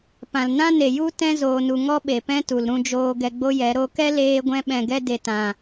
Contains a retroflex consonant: no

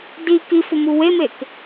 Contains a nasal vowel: no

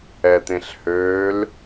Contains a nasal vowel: yes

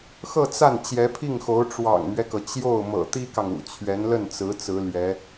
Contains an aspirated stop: yes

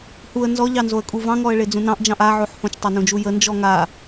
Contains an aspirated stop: no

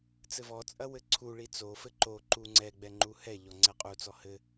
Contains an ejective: yes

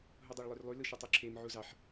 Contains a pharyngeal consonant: yes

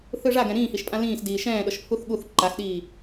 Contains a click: yes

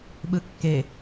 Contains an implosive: yes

